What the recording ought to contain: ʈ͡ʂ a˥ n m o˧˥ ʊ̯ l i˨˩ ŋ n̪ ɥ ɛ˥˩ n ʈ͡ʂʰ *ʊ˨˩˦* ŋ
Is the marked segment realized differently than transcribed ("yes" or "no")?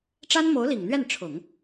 no